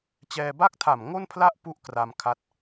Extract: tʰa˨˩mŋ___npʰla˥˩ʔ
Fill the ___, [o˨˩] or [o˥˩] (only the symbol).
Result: o˥˩